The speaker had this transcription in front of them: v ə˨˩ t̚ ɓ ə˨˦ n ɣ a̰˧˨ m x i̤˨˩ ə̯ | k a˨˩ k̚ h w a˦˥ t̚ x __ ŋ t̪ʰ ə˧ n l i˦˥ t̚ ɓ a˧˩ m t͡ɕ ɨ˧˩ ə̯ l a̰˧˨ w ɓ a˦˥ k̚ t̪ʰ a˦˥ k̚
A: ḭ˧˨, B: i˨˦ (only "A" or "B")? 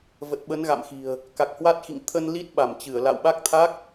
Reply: A